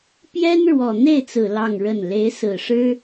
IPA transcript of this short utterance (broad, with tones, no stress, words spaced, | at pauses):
pjɛ˥n ɻwɔ˨˩n̪e˥˩ɪ̯t͡sɹ̩˨˩ lɑ˥˧ŋɻə˥˩n le˧˥ɪ̯sɹ̩˨˩ʂɻ̩˥